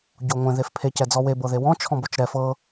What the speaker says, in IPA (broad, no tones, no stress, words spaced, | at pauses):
ɟoŋʷẽ ðefpʰe cɛd͡zɔwe bɤðewɔ̃ t͡ʃʰɔ̃bot͡ʃɾɛ fɤ